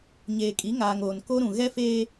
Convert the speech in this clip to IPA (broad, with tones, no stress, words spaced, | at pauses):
ɲeː˨kʼi˨˦ŋaː˨ŋoː˨n ko˦ɾũ˨ ɣɛ˦feː˦